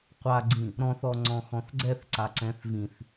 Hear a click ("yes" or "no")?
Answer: yes